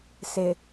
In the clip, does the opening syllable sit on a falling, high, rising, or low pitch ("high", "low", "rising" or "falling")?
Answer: low